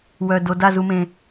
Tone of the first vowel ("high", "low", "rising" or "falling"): low